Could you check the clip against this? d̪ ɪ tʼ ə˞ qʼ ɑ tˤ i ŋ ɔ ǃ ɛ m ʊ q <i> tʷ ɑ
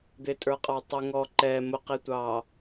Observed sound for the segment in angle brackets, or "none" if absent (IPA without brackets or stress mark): i